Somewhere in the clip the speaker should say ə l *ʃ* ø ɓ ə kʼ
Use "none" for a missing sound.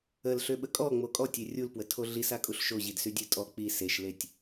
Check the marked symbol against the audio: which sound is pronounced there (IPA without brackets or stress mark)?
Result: ɬ